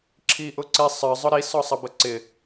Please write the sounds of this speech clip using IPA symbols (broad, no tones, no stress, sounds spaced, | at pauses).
ǁʰ i ʔ ʊ ǀ ɪ sˤ ə˞ zˤ ʊ ɾ i s ɔ sˤ ʌ b ə ǀ ɪ